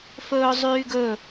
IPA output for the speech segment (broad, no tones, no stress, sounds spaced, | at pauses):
f ɵː zˤ yː ɡ ɵ